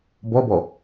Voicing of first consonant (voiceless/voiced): voiced